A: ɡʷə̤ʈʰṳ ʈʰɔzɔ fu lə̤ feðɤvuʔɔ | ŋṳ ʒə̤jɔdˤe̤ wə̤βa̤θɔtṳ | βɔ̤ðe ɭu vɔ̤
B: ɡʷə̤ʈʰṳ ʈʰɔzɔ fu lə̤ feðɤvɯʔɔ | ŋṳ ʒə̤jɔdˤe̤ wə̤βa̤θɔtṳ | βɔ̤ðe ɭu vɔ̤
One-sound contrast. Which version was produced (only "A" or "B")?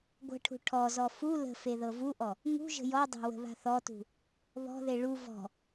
A